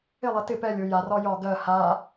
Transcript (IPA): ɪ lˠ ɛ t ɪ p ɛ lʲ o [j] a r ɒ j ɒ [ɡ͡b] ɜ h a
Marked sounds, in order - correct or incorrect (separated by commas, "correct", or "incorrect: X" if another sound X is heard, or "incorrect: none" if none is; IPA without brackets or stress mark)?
correct, incorrect: ɡ